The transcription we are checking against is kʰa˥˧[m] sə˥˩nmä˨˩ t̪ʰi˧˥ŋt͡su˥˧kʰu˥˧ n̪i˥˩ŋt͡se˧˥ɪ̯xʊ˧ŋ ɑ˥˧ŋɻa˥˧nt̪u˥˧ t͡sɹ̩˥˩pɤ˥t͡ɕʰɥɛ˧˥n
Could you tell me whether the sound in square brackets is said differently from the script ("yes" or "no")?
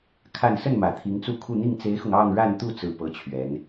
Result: yes